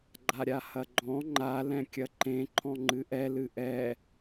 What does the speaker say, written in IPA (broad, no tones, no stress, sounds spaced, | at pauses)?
ɡ͡ǃ a ɾʲ a h ɐ ɡ͡ǃ ɔ̃ ŋ͡ǃ a l ɛ̃ kʲ ɐ ǃ ẽ ǃʰ ɔ̃ ŋ͡ǃ ɨ ʔ ɛ l ɨ ʔ ɛ